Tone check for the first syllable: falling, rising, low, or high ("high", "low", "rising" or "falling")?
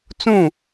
falling